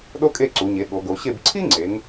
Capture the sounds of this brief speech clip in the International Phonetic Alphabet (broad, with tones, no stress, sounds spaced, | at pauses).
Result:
ɗ o˥ kʼ e˥˨ ǀ u˩˧ ɲ e˩˧ ɠ o˩˧ ɡ o˩˧ ɕ e˥˨ b ǀʰ i˥ ŋ͡ǀ e˩˧ ŋ